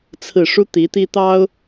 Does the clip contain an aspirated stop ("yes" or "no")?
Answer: yes